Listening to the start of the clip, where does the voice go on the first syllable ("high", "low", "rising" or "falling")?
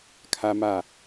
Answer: high